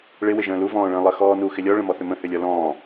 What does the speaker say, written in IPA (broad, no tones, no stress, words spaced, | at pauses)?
ɭɪ wɪʒə̃ːlu vɔ̃ːɭə̃ːlˠə xɔːnu xɪlʲɔ ɭə̃mɔθʏmə̃ hʏlʲɔlɔ̃ː